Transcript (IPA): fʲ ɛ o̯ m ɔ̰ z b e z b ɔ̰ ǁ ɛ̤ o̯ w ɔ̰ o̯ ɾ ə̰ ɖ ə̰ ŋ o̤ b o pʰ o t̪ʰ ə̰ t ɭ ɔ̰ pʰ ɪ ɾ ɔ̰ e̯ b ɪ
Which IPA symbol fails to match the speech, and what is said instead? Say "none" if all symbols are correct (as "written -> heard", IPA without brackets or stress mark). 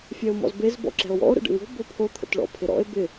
none